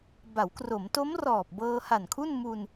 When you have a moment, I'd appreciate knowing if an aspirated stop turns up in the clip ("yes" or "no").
yes